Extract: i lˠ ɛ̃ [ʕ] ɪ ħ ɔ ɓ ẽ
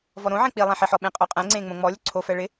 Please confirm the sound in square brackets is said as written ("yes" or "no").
no